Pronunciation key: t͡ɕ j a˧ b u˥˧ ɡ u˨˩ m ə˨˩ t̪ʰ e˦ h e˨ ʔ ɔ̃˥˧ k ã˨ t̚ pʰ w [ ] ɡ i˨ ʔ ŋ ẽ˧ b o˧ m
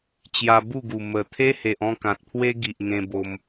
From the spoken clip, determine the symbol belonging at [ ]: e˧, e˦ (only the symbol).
e˦